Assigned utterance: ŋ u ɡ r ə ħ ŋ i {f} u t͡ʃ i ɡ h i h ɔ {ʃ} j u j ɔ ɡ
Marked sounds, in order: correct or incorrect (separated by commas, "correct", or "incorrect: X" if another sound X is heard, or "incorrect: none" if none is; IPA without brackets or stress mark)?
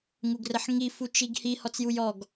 correct, incorrect: t͡s